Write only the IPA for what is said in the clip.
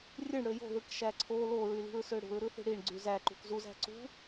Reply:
rʲ ɯ ɳ ɽ ø j o̤ ð ɯ k ʃ æ ǀʰ o l o ɹ y l i̤ ɹ s ø ɽ ṳ ɹ ɾ ɯ θ i̤ ɽ i ɳ ɡ͡ǀ y z æ ǃ ṳ k z u z æ̤ ǀ ṳ

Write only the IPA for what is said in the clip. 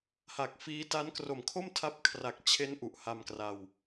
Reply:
h a˨˩ k̚ f iː˦˥ t a˦˥ n k r o˨˩ m kʰ o˥˩ m tʰ a˦˥ p̚ kʰ r a˨˩ k̚ t͡ɕʰ e˦˥ n ʔ u˨˩ ʔ h a˧ m k r a˧ w

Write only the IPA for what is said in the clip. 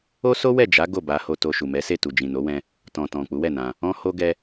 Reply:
o˦ s o˦ w ɛ˦˨ d͡ʒ a˨˦ ɡ o˦˨ b a˧ h o˨ t o˨ ʃ u˨ m ɛ˨˦ s e˦˨ t u˨ d͡ʒ ĩ˨ n o˨˦ w ɛ̃˧ | t ɔ̃˨ t ɔ̃˨ k͡p u˨˦ w ɛ˦˨ n ã˧ | ɔ̃˧ h o˧ ɡ ɛ˧

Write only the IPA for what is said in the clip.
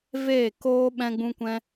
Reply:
v eː˦˨ k oː˦ ɓ ɛ̃˦ ɡ͡b ũ˦ kʷ ɛ̃˦

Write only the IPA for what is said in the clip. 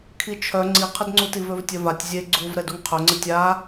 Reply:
kʰ i t͡ʃʰ œ ŋ͡ǀ i qʰ ə d ŋ͡ǀ u t i v ø v tʲ œ v a tʲ zʲ e ɡ͡ǀ u v ɾ ɛ d u ŋ qʰ œ ŋ͡ǀ ə tʲ a

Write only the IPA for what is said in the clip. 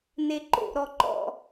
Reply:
n e ǃ o̰ ɾ ɔ ǃ ɔ̰

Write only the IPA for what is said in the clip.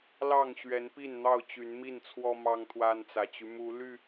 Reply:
l ɑ˥˨ ŋ ɕ ɥ ɛ˨˦ n p i˥˨ n n̪ ɑ˥˨ ʊ̯ t͡ɕ y˨˦ n m i˥˨ n t͡sʰ w ɔ˦ m ɑ˦ ŋ t̪ʰ w a˦ n t͡s ä˨˩ t͡ɕ y˦ m u˨˦ l y˥˨

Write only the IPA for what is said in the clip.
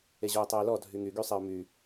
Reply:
e ʑ o ɪ̯ tˤ œ ɪ̯ l ɔ dʱ y ŋ y ɡ y sˤ e ʊ̯ m y

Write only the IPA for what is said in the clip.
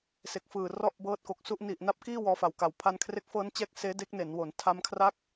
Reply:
s e˨˩ k̚ f ɯː˨˩ r ɔ˥˩ ʔ b ɤː˦˥ t̚ k o˨˩ k̚ s u˥˩ ʔ n i˨˩ ʔ n a˦˥ p̚ k iː˥˩ w ɔː˧ f a˨˩ w k a˨˩ w pʰ a˧ n kʰ r e˦˥ k̚ f ɤː˦˥ n t͡ɕ ɛː˦˥ k̚ s eː˦˥ d e˦˥ k̚ n e˩˦ n w o˩˦ n tʰ a˦˥ m kʰ r a˥˩ k̚

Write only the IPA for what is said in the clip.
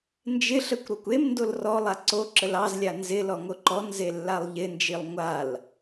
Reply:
n d͡ʒ ɪ ɬ ə kʷ ɾ o kʷ e m n d o l r ɔ lˠ a ǀ o ǁ ə l ɑ z lʲ a n z ɪ l ɔ ŋ o ǃ ɔ n z e lː a lˠ ʎ ɪ n d͡ʒ i lˠ ŋʷ a l

